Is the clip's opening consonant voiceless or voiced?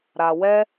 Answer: voiced